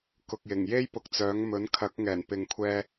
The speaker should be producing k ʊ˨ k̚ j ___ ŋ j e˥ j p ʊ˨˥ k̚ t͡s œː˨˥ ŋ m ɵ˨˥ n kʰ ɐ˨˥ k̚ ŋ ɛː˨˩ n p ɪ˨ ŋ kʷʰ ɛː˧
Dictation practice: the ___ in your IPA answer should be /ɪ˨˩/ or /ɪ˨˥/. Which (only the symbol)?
ɪ˨˩